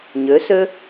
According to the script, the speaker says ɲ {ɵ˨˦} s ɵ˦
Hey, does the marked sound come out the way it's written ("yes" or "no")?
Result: yes